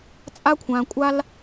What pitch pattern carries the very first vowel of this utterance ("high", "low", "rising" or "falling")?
high